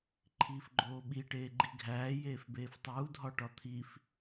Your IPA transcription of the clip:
ǃʰ iː f ɡ͡ǃ oː ɓ i ʈ eː ɡ͡ǃ i ɡʱ æː j eː f b eː f tˤ uː dʱ ɒ ʈ ɒ t̪ʰ i f

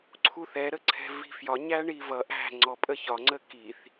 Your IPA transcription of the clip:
ǀʰ u θ ɛ ɾ ə ǀʰ ɛ̤ v i̤ f j ɒ ɲ æ ɳ i v ʌ ʔ æ̤ ŋ͡ǀ ɔ pʼ ə ç ɒ ŋ͡ǀ ə k i θ

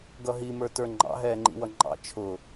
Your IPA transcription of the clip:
ɡ ʌ ɦ i m ə˞ t ə˞ ŋ͡ǃ ɑ̰ ɦ ɛː ŋ͡ǃ ḭ w ʌ ŋ͡ǃ ɑ̰ t͡ʃʰ ʊ

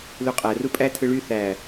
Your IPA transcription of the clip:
l u qʼ æ r u pʼ æ tʰ ɯ ɭ y θ æ

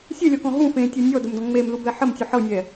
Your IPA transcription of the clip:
sʲ ɛ lʲ ɔ k ɔ̃ ɦ ũ f ẽ tʲ ɤ nʲ ɔ d ə m d ɔ̃ ŋ͡m e m l u b ɛ ħ ə m tʲ u ħ ɤ nʲ ɛ

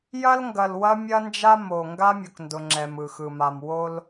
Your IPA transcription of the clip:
j ɐ˦ l ŋ ɡ ɐ˨ l w ɐ˦ mʲ ɐ˦ n d͡ʒ a˦ m o˨ ŋ ɡ a˦ mʲ ʊ˨ k n d ʊ˨ ŋ͡ǁ ɛ˨ m ɯ˨ x ɯ˨ m a˨ m w o˦ l

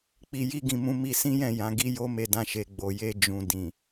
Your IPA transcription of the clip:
k͡p i˧ j i˦ ɡ ĩ˧ m ũ˧ m i˧ s ĩ˦ j ɛ̃˦˨ j ã˨˦ ɡ i˦ j o˦ m e˧ d ã˧ ʃ e˨ ɡ͡b o˨ j e˧ d͡ʒ ũ˨ d ĩ˨

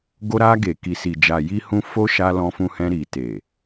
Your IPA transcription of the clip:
ɡ o˧ ɾ a˧ ɡ e˨ k i˨ s i˨ d͡ʒ a˨ j i˧ h ũ˧ f o˦ ʃ a˧ l ɔ̃˧ f ũ˧ h ɛ̃˧ ɾ i˨ t e˨

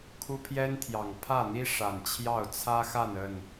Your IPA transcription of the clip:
kʰ u˦ pʰ j ɛ˦ n t̪ʰ j ɑ˨˩ ŋ pʰ ä˥˨ n̪ i˦ ʂ a˨˩ n t͡ɕʰ j ɑ˥˨ ʊ̯ t͡sʰ ä˦ x a˥˨ n ə˥˨ n

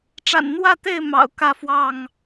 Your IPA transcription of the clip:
ʈ͡ʂ a̰˨˩ n n̪ w ä˥˨ t̪ e˥˨ ɪ̯ m ɑ̰˨˩ ʊ̯ k ä˥˨ f w ɑ˥˨ ŋ

